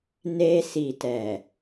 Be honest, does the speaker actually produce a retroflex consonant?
no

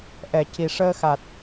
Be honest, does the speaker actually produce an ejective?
no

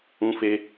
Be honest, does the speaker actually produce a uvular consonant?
no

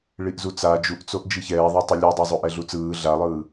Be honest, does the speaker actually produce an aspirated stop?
no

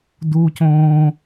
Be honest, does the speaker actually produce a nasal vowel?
yes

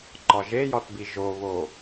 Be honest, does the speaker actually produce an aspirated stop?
no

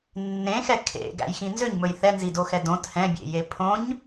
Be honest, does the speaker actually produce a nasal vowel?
yes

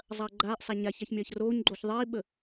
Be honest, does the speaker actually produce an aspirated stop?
no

